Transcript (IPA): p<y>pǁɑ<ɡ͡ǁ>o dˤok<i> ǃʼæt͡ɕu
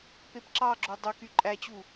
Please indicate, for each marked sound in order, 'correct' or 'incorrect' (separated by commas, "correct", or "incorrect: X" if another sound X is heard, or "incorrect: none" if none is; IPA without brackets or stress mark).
incorrect: e, correct, incorrect: y